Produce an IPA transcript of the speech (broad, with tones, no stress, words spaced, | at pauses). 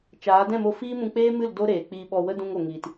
t͡ʃaː˨˦ dɛ̃˦˨mo˧ fiː˦mũ˧k͡peː˦mɨ˦˨l do˦ ɾeː˨k͡piː˧ɓɔ˧ wə˦dũ˧ŋo˨ŋiː˨t